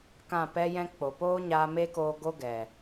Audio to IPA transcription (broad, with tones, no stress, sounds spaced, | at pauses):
k ã˦˨ p ɛ˦ j ɛ̃˦ k͡p o˨ p oː˦ ɲ aː˧ m e˦ k oː˧ ɡ o˦ ɡ ɛ˨